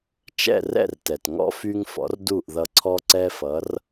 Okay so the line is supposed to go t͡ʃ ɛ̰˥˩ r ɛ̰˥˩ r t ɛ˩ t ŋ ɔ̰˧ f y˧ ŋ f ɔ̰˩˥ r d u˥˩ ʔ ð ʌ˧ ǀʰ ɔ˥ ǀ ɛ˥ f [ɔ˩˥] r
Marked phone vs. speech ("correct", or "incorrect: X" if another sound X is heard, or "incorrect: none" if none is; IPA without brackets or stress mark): incorrect: ʌ˩˥